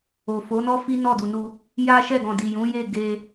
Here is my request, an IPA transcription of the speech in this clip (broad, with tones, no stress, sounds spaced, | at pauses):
o˨ f o˨˦ n ɔ˦ f i˦ n ɔ˦˨ d u˨ n u˧ | j a˦ ʃ ɛ˦˨ ɡ ɔ̃˨ d i˨ j ũ˨˦ j e˦˨ ɡ e˧